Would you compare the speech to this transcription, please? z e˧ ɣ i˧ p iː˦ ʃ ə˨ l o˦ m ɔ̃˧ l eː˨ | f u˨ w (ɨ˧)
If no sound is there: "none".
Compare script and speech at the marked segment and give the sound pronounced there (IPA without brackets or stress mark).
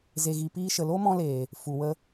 ə˧